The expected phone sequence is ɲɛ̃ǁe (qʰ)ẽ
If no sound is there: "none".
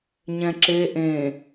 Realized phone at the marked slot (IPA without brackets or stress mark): ʔ